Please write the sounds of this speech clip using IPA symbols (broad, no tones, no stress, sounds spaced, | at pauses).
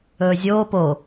ɵː zʲ oː p o